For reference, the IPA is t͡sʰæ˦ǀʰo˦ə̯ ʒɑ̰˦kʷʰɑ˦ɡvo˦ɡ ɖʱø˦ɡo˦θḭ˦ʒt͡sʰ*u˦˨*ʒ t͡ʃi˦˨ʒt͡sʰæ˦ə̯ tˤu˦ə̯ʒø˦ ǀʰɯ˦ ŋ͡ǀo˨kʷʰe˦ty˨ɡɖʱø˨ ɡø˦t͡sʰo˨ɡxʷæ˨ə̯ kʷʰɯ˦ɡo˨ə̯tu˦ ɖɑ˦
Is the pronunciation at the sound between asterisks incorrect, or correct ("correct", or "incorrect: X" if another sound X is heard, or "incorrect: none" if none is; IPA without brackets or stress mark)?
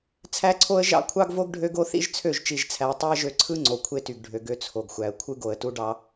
incorrect: ø˦˨